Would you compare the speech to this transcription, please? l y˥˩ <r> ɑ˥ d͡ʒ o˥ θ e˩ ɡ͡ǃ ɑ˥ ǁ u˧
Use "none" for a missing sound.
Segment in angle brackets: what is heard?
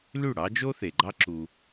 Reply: ɽ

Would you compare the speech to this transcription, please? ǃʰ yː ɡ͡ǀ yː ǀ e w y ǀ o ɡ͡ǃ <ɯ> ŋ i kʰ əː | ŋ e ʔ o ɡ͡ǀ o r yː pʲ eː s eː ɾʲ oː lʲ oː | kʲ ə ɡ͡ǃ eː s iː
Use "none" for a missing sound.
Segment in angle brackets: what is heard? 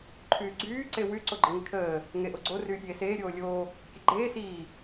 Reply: ə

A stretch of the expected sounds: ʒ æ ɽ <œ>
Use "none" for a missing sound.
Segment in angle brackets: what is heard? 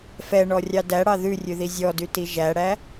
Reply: æ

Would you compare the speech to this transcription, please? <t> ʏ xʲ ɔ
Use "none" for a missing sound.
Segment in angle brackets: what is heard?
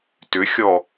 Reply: t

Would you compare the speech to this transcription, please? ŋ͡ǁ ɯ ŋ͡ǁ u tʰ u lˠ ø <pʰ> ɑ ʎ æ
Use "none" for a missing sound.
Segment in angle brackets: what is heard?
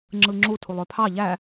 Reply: pʰ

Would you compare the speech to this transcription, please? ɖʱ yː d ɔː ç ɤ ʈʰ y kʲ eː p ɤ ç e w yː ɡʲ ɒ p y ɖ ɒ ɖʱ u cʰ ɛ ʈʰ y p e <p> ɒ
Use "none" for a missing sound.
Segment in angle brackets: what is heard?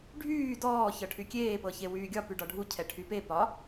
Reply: p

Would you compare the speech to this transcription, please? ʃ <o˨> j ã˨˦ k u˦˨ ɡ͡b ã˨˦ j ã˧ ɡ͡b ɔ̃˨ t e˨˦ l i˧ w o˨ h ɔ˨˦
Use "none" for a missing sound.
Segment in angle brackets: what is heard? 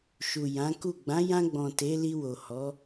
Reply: u˨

